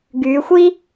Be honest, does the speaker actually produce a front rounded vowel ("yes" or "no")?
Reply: yes